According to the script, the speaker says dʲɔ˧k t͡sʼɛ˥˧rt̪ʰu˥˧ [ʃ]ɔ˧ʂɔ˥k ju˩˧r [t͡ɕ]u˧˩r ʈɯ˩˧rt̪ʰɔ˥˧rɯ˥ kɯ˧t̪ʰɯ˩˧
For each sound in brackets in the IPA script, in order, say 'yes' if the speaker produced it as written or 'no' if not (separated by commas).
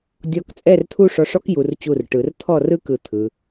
no, yes